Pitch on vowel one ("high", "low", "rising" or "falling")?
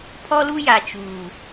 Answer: high